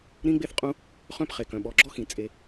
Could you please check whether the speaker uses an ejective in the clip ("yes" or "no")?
yes